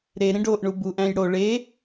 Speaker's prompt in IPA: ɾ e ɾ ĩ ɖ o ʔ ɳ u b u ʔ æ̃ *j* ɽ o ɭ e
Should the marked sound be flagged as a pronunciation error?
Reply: no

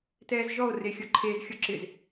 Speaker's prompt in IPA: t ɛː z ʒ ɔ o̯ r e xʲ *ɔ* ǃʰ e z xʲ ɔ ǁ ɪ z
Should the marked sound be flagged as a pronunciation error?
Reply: no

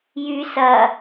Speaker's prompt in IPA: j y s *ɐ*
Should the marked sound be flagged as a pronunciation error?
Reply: no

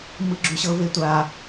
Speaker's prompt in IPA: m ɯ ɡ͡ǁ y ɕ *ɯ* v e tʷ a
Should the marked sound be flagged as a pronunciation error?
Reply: yes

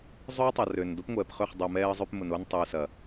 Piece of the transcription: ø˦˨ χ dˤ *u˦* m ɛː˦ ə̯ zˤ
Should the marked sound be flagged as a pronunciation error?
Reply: yes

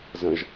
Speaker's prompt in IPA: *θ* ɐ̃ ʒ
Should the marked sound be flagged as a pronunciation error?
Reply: yes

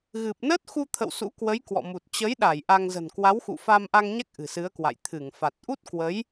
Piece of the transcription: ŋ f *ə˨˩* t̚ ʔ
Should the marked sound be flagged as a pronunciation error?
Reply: yes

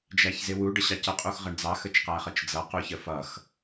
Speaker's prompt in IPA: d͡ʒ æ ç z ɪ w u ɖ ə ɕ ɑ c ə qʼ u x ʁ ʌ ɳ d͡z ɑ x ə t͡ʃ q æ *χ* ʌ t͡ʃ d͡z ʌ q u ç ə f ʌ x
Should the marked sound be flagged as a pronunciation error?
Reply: no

